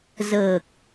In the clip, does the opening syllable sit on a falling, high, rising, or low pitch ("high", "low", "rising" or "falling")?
low